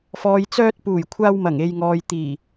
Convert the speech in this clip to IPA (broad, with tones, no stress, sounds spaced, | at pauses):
f ɔː˨ j t͡s œː˧ t̚ p uː˨˩ j kʷʰ aː˧ w m ɐ˨˩ ŋ e˨ j ŋ ɔː˨ j t̪ iː˨˩